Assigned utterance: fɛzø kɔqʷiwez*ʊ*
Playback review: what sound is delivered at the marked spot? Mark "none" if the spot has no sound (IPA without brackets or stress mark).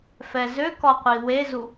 u